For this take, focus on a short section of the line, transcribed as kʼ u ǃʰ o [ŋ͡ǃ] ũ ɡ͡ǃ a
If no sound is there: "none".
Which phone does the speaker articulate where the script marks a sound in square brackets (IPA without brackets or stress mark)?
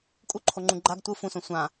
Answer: ŋ͡ǃ